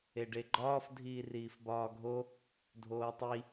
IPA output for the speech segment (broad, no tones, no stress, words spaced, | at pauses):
eɖeɡ͡ǃɒːf dʱiːriːfbɒːɡʱo | dʱoːtˤi